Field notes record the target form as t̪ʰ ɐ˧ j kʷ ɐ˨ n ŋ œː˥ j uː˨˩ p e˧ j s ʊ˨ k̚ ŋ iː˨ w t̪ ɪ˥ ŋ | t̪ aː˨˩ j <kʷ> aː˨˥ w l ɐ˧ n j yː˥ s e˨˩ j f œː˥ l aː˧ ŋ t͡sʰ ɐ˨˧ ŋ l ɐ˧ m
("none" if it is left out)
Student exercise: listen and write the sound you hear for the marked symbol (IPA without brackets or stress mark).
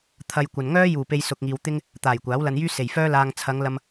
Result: kʷ